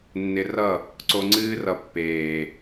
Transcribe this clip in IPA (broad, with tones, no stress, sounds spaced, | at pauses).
nː ɪ˧ r ʌ˦˨ | ǀ o˧ ŋ͡ǀ ɨː˦ r ʌ˧ pː eː˨